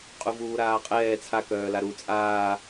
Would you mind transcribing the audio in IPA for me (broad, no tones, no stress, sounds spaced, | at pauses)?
qʼ u v uː ɾ aː qʼ ɛː t͡sʰ a k œː l a ɾ u t͡sʼ aː